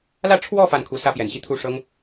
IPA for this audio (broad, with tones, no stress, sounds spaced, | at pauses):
l ä˥˧ ʈ͡ʂʰ w ɔ˥˧ f a˥˩ n kʰ u˧˥ s ä˥ p j ɛ˨˩ n ɕ i˥˧ t̪ʰ u˥˩ ʂ ɤ˥ ŋ